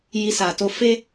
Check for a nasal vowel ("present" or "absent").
absent